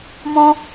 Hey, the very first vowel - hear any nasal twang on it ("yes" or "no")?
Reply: yes